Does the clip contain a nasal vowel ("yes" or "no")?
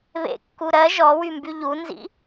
no